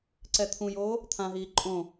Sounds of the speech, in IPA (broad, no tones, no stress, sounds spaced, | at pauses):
ǀ ɛ t̪ʰ ũ j oː | t̪ʰ ã ɦ iː ǃʼ õ